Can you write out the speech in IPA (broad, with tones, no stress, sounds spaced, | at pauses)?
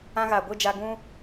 ã˧ ɣ aː˨ ɡʷ ɨ˦˨ d͡ʒ a˧ ɡ ũ˦